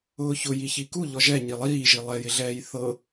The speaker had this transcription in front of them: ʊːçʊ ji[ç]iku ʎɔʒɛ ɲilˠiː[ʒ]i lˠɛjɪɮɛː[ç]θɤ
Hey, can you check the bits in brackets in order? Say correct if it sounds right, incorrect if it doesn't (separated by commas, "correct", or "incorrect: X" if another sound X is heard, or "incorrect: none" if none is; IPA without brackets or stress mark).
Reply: correct, correct, incorrect: j